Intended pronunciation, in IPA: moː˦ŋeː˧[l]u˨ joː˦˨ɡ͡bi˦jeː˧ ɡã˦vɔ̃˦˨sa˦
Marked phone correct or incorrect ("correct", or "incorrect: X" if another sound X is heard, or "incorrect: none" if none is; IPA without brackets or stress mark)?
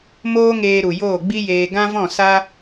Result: incorrect: ɾ